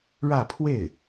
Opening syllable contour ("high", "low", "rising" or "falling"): falling